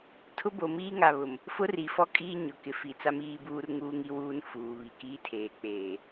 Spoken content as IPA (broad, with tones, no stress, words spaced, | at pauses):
tʰʊ˦bo˨miː˦ ŋa˨βʊ˨m | fʊ˦ri˨ fɔ˦kʼiː˦ ɲʊ˨kɪ˨fi˨t͡sa˦m iː˦buː˦r ŋuː˦ŋi˦wuː˦nfuː˨ βi˨kiː˦ tʰeː˨k͡peː˨